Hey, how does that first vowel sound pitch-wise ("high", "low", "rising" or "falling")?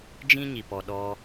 high